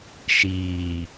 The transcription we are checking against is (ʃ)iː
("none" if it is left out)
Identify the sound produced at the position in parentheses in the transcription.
ʃ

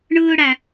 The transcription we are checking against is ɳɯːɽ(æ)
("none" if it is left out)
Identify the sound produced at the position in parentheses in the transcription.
æ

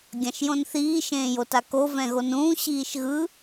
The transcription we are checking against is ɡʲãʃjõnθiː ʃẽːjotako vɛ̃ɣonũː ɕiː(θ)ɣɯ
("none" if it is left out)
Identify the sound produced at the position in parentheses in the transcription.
ʃ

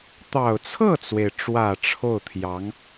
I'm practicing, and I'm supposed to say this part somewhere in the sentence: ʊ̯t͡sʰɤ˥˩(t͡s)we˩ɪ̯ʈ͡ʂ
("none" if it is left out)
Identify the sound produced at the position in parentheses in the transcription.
t͡s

